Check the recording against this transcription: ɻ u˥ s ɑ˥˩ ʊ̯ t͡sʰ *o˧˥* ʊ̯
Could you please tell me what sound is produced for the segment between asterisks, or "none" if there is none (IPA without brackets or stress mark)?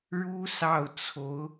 o˧˥